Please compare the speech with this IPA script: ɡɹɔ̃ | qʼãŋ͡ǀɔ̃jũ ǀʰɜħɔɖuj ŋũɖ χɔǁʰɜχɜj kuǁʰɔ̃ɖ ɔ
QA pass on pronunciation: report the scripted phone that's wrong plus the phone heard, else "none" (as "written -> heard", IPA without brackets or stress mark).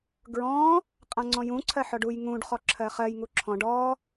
k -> ŋ